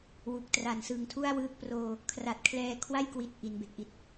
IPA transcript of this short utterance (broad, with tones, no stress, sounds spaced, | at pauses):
w u˨˩ k̚ t r a˨˩ n s ɯ˨˩ ŋ tʰ u˥˩ a̯ w ɯː˦˥ k̚ p r oː˧ | kʰ r a˨˩ t̚ kʰ l ɛː˧ kʰ w a˥˩ j k w i˨˩ t̚ ʔ i˩˦ n b e˨˩ k̚ ʔ i˨˩ t̚